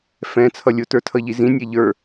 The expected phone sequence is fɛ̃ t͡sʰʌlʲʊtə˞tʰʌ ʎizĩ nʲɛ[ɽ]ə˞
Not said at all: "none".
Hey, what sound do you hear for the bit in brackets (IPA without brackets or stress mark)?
ʎ